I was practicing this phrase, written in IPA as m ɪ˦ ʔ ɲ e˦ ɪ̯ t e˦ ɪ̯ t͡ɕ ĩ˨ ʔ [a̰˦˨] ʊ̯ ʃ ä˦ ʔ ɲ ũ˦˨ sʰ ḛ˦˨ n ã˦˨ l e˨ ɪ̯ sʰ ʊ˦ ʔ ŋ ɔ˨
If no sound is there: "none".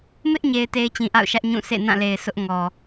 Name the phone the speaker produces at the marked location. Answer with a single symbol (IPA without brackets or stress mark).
a̰˦˨